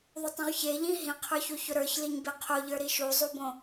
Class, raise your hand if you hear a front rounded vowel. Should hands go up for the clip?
no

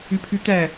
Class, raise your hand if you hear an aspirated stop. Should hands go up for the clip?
yes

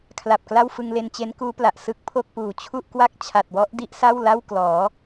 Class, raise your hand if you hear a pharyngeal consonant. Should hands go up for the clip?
no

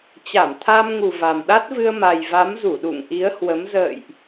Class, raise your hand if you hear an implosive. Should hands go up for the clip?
yes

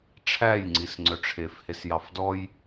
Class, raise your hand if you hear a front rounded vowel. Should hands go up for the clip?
yes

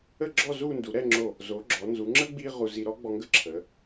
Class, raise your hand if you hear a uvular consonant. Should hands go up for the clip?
yes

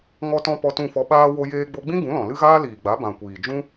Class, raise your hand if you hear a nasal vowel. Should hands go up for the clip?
yes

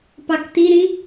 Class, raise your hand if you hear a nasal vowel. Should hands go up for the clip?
yes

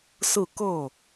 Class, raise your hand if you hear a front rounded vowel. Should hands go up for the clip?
no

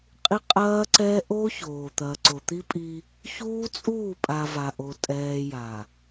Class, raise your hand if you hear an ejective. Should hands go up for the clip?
yes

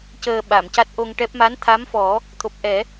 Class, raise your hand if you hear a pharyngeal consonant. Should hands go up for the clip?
no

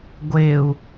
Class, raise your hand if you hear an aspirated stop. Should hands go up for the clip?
no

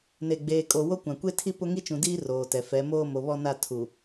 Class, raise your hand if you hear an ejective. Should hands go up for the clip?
yes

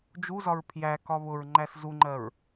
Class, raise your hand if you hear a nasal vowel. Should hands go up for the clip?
no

